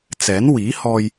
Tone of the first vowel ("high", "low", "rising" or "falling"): rising